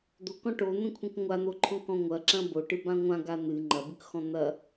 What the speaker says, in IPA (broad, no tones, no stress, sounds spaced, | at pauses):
d̪ o k ɔ̃ ʈ o n̪ ẽ kʷʰ ẽ k ŋʷ a n̪ o ǃʰ ɔ̃ k ɔ̃ ŋʷ ɐ ǁ ɐ̃ b o ʈ ɨ b ã ŋʷ ã ɡ a n̪ ɨ ŋ͡ǃ ɐ b ɨ k x ɔ̃ n̪ ɐ